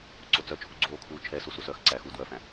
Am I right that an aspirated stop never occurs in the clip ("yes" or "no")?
no